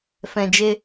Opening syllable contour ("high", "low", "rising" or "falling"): low